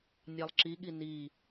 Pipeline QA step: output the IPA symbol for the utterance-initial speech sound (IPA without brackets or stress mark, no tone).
nʲ